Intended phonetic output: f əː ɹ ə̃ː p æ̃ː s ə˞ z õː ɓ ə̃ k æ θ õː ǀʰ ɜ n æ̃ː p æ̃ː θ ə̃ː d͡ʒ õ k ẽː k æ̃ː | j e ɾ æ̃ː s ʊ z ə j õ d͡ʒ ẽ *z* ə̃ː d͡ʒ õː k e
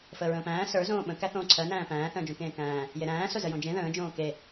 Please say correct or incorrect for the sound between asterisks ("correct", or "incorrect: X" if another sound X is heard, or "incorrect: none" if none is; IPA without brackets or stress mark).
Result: incorrect: ð